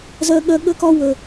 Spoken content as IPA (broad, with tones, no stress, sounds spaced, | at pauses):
z ɜ˦ ɠ ɜ˦ ɠ ə˦ k ɒ˦ w ə˨